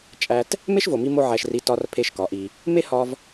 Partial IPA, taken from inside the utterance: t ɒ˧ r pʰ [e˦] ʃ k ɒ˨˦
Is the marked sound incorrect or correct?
correct